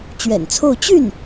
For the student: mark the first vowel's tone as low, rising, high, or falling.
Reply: low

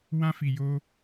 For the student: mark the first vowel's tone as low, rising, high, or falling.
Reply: high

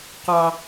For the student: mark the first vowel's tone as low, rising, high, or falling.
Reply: low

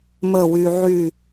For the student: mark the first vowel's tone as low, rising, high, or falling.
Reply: falling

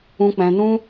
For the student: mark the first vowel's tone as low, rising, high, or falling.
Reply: low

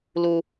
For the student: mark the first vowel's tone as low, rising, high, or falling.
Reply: low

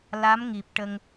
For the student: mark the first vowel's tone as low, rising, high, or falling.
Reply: rising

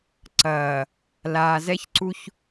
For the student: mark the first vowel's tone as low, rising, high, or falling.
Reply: low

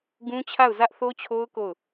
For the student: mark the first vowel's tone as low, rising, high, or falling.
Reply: high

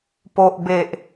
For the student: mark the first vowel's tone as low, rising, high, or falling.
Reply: low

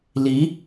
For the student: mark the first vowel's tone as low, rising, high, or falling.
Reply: rising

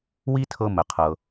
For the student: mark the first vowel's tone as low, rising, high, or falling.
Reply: high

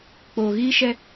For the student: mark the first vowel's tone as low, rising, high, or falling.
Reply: low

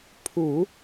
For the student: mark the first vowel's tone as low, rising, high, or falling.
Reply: low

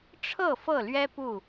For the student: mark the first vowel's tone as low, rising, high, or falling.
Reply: falling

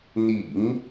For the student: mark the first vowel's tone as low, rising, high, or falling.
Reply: low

